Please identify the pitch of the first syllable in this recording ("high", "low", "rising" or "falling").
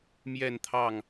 falling